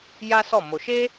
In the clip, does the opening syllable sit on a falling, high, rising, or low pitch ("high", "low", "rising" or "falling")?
high